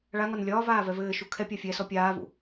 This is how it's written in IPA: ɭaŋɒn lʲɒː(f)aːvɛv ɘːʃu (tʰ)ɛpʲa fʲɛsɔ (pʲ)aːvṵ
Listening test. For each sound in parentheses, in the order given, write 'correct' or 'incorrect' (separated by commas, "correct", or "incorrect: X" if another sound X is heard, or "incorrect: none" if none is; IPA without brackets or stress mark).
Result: incorrect: v, incorrect: kʰ, correct